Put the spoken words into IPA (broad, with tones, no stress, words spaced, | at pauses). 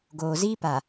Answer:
ɡoː˨ziː˦pa˨